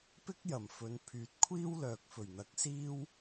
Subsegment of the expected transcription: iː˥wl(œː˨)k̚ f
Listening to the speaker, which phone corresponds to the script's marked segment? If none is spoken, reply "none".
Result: œː˨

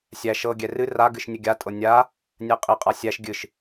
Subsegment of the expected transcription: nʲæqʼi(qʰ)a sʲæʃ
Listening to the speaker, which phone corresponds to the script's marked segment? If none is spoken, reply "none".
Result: qʼ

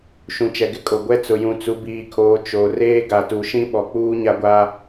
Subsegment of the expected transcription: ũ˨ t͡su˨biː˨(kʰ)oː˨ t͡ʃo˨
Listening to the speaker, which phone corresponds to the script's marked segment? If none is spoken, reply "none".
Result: kʰ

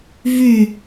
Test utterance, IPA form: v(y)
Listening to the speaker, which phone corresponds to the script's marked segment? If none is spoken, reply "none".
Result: y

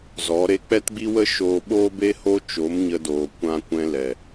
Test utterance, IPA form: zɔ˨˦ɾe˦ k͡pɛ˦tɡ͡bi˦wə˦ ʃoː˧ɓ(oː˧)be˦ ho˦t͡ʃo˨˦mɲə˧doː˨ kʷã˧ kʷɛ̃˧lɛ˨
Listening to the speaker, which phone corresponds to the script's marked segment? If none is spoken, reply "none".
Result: oː˦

